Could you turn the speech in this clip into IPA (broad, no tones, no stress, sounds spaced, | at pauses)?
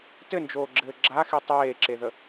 t ɘ n d͡ʒ oː ɡ͡ǁ ɘː ɡ͡ǁ a x i tˤ eː ǁ e ð ə